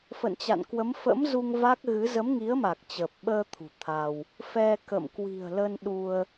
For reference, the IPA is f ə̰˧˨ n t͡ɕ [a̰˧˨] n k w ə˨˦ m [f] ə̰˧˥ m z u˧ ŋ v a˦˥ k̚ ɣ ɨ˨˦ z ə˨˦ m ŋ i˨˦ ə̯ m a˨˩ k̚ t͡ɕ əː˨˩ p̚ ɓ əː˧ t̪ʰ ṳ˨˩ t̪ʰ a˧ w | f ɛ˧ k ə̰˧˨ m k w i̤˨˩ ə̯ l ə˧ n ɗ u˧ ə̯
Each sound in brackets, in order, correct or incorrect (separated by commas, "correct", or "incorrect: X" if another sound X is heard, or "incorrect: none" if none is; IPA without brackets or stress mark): correct, correct